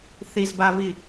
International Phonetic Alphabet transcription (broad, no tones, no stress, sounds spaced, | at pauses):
θ i z b a v i